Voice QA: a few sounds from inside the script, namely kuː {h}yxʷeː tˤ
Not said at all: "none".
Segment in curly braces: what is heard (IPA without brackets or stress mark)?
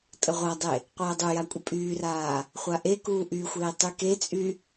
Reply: ʔ